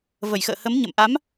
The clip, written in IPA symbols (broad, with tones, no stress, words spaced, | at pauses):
və˧˩jxə̰ː˧˨hə˨˦m ɲə̰˧˨mʔa˨˦m